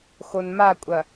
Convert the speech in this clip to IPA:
x o n m a kʷʼ ɐ

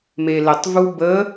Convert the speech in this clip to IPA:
m e l ə tˤ v u b ə

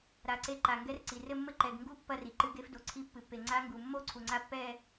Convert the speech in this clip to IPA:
ɾ a˩ ǀ e˧˥ ǃ a˩ ŋ ɡ ɛ˧˥ r ǀ i˩ r ɘ˥˧ mː ɘ˥˧ ǃ ɛ˩ ɡ ŋ ɡ u˧˥ pː ɐ˥˧ r i˩ ǃ ɨ˧˥ ɡ e˧˥ f d o˩ ǀʰ i˧˥ pː ɨ˩ pː e˩ ŋ͡ǀ a˧˥ ŋ ɡ u˩ mː o˥˧ ǀʰ u˩ ŋ͡ǀ a˧˥ pː ɛ˥˧

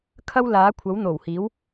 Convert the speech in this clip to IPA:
kʰ ɐ˥ w l aː˨˥ kʷʰ ɐ˨˥ w n̪ o˨˩ w h iː˨˥ w

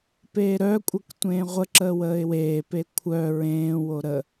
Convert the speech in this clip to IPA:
p eː ɾ œ kʷʼ ə k tʷ ẽː ʁʷ ə ǁ əː w əː ɪ̯ w eː p e kʷʰ œ ɹ ẽː w o ɾ ə

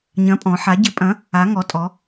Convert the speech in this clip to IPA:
ɲ ɐ̃˨˥ pʼ ɔ̃˩˧ ħ a˩˧ ɟ ɪ˨˥ pʼ ɐ̃˨˥ | a˩˧ ŋ ɔ˩˧ tʼ ɔ˩˧

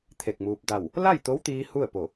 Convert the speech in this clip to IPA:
t̪ʰ e˧˩ k̚ m uː˧ p̚ d a˧˩ w | l a˥˨ j t̪ o˧˥ w t̪ iː˧ h u˥˨ ə̯ p o˧˩

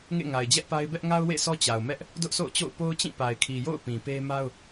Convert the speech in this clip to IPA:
ŋ ḛ˦˨ ŋ a˨ ɪ̯ d͡ʑ ɛ˦ ʔ p a˦ ɪ̯ b ɛ˦ ʔ ŋ a˦ ʊ̯ w ḛ˦˨ sʰ ɔ˦ t͡ɕ a˨ ʊ̯ m ɛ˦ ʔ | d ʊ˦ ʔ sʰ o̰˦˨ ʊ̯ t͡ɕ o̰˦˨ ʊ̯ p o˦ ʊ̯ t͡ɕ ĩ˦˨ p a˨ ɪ̯ kʰ i˨ j o̰˦˨ ʊ̯ p ĩ˨ p e˦ m a˦ ʊ̯

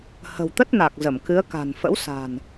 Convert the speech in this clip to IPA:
h ə̤˨˩ w t̪ ə˦˥ t̚ n a˨˩ k̚ z ə˧˩ m k ɨ˨˦ ə̯ k a̤˨˩ n f ə̰˧˥ w s a̤˨˩ n

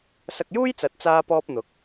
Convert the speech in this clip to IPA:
s ɐ˧ k̚ j uː˥ j t͡s ɐ˨˥ t̚ t͡s aː˥ p ɔː˥ p̚ n̪ ʊ˨˥ k̚

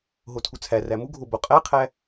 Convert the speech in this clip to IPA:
ɦ o tʰ u t͡sʰ æ r æ m u ɡʱ o b o qʼ æ qʰ æ

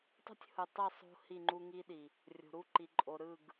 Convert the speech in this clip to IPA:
tˤ o̤˦ tʲ h ɯ˨ tˤ i˦˨ sˤ o̤˦ h i˦˨ ŋ͡ǃ u˦ ŋ i˦ ɗ i˨ | rʲ o̤˨ ɾ u˦ ǃ i˨ ǃʼ o˨ ɾ ɯ˦˨ ɡ

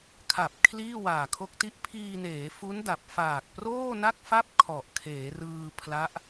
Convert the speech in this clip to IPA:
kʰ a˨˩ p̚ kʰ l iː˥˩ w aː˨˩ kʰ o˦˥ k̚ t i˦˥ ʔ pʰ iː˧ n eː˩˦ f u˦˥ n d a˨˩ p̚ f aː˨˩ k̚ p r oː˥˩ n a˥˩ k̚ f a˥˩ p̚ kʰ ɔ˨˩ ʔ kʰ eː˩˦ r ɯː˧ pʰ l a˦˥ ʔ

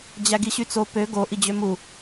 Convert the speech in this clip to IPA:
d͡ʑ æ ɡ i ɕ y t͡s o p ø ɡ o ʔ i d͡ʑ ø m u

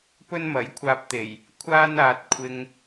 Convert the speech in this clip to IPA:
p ɵ˥ n m ɐ˨˥ j kʷʰ aː˧ p̚ t̪ e˨˩ j | kʷʰ aː˥ n aː˧ t̚ kʷʰ ɪ˧ ŋ

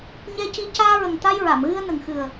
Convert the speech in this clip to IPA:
ɲ ɛ˧ c i˧ c aː˧ ɹ ə˨˩ ŋ t̪ a˧ j ɹ a˨˩˨ m ɣ ɨ˧ ə̯ n ə˨˩ ŋ x ɨ˨˩ ə̯

